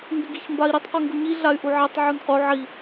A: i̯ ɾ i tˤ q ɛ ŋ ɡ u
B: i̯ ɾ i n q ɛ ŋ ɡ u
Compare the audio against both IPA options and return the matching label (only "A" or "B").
A